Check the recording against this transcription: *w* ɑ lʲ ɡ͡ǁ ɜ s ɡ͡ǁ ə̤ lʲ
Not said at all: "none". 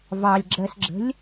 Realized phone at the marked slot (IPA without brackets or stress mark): v